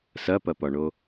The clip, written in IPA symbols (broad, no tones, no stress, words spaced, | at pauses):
sɐpɐpɒɳo